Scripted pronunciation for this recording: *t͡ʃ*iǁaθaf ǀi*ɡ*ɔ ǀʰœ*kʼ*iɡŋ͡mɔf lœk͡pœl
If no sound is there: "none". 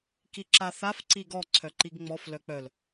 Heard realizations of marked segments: k, ɡ, ǃ

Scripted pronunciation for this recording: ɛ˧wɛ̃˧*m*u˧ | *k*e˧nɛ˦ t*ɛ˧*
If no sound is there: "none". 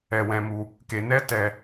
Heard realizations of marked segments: m, k, ɛ˧

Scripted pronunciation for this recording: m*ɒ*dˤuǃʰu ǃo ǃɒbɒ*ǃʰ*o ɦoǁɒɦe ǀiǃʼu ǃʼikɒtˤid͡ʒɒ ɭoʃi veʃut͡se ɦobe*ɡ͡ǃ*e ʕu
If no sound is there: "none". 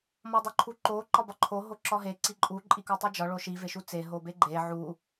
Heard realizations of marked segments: ɒ, ǃʰ, ɡ͡ǃ

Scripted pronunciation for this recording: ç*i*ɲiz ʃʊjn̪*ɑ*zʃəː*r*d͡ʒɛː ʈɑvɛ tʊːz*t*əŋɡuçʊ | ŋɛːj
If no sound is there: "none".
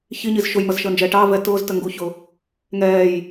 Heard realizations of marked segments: i, ʌ, n, t

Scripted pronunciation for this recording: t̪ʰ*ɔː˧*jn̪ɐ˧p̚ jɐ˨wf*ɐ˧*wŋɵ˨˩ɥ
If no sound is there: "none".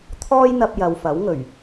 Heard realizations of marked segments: ɔː˥, ɐ˨˥

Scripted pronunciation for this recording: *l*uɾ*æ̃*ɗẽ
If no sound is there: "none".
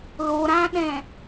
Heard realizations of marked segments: l, æ̃

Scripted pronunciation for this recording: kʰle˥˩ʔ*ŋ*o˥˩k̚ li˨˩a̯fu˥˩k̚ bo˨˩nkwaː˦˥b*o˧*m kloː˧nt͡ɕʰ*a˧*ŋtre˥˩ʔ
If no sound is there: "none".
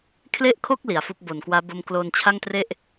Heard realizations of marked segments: kʰ, o˦˥, a˥˩

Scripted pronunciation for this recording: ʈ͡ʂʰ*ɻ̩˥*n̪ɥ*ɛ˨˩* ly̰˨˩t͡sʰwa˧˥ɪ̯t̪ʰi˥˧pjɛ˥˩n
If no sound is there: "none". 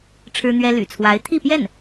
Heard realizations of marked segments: ɻ̩˥, ɛ˥

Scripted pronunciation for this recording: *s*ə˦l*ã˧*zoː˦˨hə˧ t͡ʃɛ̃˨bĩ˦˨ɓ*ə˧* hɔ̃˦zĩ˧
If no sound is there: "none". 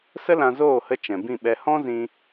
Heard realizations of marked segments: s, ã˧, ɛ˧

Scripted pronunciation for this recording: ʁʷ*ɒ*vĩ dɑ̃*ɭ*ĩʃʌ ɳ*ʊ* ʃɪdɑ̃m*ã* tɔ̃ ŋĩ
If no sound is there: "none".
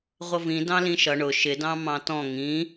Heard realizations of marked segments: ʌ, l, ʊ, ɑ̃

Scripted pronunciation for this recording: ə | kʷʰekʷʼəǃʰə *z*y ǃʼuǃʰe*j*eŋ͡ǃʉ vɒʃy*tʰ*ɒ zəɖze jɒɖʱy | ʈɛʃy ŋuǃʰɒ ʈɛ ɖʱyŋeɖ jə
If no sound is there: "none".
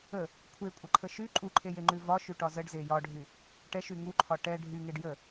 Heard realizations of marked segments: ʃ, j, ʈ

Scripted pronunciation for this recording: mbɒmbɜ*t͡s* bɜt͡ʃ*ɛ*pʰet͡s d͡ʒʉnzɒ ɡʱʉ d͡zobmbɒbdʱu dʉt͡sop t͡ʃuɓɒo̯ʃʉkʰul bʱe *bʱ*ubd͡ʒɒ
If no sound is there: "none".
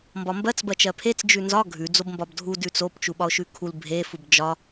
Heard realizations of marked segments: t͡s, ɜ, f

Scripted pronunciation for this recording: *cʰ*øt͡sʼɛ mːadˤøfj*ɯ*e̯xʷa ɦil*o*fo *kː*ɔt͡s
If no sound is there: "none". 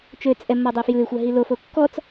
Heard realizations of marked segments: t͡ʃ, ɯ, o, kː

